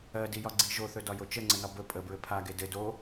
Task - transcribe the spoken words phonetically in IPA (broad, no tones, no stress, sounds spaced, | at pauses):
ɜ d i j ɒ ɡ͡ǀ i ʒ o θ ɵ d ɒ j o t͡ʃ ə ŋ͡ǀ ə n ɒ b ɵ pʼ ə b ɹ ɘ pʰ a ɡ e d ɘ d o